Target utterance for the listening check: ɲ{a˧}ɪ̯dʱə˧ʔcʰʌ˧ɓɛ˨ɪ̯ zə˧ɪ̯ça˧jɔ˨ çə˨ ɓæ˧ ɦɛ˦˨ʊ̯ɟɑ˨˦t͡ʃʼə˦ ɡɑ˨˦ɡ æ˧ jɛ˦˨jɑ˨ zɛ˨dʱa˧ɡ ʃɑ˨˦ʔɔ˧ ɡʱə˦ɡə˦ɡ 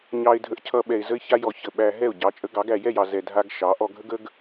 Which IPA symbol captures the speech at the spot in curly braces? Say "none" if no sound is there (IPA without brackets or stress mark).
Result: ɑ˧